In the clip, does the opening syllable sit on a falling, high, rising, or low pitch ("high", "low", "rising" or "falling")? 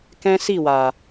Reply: high